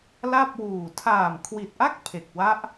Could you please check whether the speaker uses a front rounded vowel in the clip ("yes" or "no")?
no